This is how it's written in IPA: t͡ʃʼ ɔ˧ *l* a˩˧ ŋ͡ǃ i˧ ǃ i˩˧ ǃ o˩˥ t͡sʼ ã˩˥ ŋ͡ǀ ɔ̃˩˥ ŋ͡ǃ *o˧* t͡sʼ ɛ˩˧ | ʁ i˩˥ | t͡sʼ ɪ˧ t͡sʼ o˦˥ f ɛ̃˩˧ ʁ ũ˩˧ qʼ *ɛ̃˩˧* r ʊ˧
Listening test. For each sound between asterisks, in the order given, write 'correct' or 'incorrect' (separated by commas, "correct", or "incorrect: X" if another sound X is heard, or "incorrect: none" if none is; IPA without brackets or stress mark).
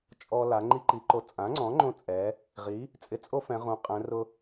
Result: correct, incorrect: õ˧, correct